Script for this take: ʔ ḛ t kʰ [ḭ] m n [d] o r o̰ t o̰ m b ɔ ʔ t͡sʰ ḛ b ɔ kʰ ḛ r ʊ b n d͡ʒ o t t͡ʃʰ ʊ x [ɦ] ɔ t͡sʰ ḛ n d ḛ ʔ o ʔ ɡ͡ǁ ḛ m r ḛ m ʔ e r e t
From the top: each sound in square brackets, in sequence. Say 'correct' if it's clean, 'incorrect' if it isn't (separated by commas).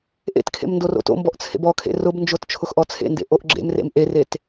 incorrect, correct, incorrect